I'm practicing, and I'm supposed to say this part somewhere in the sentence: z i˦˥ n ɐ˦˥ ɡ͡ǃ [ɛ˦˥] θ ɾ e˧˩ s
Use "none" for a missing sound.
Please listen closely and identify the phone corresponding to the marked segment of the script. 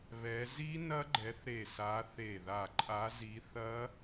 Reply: ɛ˨˦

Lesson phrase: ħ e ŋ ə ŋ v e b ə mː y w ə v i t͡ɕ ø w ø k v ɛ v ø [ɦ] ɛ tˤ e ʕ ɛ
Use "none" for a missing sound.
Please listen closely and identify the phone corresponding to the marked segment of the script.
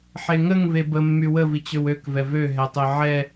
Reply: ɦ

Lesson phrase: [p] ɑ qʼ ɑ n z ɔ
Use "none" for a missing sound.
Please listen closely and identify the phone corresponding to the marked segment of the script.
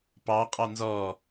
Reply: p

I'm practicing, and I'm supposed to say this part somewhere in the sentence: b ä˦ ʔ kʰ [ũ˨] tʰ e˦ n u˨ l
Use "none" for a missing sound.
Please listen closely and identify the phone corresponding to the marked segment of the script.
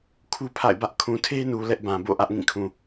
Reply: ũ˨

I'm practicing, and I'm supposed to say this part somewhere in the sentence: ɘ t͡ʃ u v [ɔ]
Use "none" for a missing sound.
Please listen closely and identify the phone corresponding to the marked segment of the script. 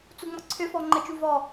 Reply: ɔ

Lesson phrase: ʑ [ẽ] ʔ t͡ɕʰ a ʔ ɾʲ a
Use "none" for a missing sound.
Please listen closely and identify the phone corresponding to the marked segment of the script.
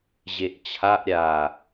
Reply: e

